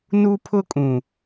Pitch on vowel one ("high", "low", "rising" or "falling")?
high